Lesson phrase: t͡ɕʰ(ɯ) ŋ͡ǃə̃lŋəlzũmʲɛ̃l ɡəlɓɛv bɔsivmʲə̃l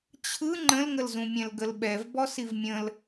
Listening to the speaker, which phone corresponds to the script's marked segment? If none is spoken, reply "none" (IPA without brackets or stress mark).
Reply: ɯ